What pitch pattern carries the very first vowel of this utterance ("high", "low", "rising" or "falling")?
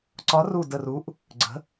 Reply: rising